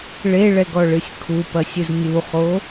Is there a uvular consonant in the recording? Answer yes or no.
yes